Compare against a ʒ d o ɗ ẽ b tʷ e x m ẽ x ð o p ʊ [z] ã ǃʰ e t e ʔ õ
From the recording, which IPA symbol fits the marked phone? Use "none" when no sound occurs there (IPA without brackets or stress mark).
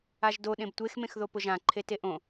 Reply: ʒ